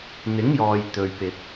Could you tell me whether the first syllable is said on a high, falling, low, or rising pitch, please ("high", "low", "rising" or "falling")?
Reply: rising